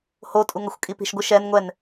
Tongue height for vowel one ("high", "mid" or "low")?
mid